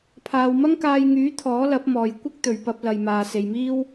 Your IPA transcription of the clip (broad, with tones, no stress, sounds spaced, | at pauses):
pʰ aː˨ w m ɐ˥ ŋ k aː˧ j ŋ yː˨˥ t̪ʰ ɔː˨˥ l ɐ˨˥ p̚ m ɔː˨ j kʷ ɪ˥ k̚ t̪ ɵ˨ ɥ p ɐ˧ p̚ l ɐ˨ j m aː˨ s e˨ j m iː˥ w